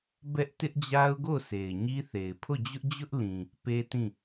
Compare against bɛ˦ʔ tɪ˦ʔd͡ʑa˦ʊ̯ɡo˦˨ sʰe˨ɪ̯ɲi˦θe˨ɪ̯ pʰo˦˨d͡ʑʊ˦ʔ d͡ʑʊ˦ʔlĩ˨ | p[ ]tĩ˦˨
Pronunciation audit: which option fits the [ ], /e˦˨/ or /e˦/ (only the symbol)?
e˦